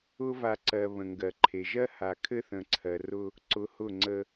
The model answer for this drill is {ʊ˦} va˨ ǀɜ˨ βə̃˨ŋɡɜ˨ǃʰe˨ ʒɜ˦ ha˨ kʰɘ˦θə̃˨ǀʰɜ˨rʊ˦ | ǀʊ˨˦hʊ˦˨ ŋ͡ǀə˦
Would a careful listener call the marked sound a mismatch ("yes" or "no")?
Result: no